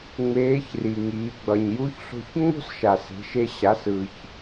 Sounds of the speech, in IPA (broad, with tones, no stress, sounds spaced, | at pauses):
ŋ͡m eː˧˥ ç r i˩ ŋ iː˩˧ ɡ͡b ʌ˩ ɲ j u˧˥ ç ɬ o̤˧ ç ŋ͡m o̤˥ s ʃ a˩ s e̤˩˧ ʃ e˧ ɕ a˩˧ s ɯ˩ ç